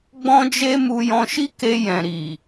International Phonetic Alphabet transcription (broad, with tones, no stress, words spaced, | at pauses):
ɡ͡bɔ̃˦d͡ʒe˦ mu˧jɔ̃˧ʃi˦ke˧ jɛ̃˨ɾi˨